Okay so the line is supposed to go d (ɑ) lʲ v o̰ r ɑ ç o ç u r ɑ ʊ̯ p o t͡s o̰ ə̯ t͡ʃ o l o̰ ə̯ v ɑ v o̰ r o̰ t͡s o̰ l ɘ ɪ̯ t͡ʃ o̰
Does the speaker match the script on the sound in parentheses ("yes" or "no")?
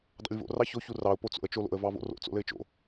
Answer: no